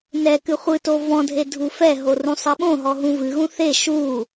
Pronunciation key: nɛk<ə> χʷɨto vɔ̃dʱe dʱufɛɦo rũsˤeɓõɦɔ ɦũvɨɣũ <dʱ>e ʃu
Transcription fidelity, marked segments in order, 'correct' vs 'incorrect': incorrect, incorrect

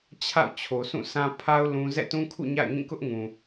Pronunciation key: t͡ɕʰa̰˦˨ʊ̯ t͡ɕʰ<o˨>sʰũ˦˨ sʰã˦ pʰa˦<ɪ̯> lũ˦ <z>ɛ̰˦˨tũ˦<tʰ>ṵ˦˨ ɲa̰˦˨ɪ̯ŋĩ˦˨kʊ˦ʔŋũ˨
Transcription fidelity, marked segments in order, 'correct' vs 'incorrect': correct, incorrect, correct, incorrect

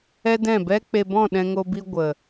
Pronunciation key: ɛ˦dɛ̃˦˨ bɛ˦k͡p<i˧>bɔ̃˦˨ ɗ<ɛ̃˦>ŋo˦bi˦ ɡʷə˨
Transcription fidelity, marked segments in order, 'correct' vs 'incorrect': incorrect, correct

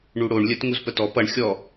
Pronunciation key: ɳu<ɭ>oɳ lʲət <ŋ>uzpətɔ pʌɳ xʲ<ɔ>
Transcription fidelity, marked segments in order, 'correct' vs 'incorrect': incorrect, correct, correct

